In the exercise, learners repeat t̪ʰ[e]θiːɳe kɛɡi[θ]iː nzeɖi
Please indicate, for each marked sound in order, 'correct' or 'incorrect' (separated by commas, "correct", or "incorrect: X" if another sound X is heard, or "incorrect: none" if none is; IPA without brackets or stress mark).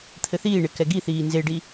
incorrect: ɘ, correct